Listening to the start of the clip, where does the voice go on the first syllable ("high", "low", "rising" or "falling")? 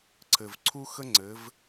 low